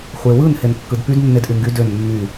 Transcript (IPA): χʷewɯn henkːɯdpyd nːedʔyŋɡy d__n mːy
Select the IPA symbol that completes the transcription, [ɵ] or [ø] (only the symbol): ø